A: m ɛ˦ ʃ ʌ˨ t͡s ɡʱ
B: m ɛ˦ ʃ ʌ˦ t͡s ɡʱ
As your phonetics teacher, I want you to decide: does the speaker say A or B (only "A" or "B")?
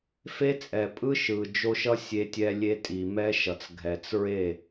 A